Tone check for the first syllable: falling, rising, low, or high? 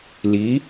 rising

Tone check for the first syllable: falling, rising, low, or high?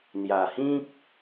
low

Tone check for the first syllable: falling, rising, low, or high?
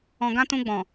low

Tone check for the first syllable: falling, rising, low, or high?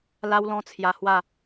high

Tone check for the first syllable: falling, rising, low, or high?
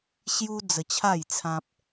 high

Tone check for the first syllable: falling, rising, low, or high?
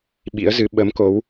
rising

